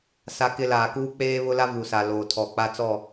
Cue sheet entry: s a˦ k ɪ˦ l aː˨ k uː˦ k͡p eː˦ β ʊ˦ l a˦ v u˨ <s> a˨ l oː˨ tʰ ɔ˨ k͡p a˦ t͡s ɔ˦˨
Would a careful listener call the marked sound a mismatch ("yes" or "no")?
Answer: no